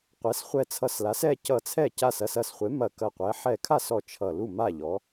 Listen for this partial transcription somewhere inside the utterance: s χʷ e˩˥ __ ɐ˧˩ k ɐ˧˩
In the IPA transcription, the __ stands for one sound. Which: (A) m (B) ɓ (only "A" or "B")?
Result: A